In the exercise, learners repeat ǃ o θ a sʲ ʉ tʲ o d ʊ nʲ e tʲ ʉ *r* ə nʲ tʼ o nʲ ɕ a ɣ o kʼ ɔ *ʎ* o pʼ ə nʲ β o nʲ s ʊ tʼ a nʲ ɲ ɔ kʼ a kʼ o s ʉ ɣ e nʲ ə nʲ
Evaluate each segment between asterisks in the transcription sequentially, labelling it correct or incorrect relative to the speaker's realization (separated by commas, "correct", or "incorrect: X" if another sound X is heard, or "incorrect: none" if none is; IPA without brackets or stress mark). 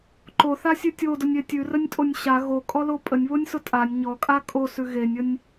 correct, incorrect: l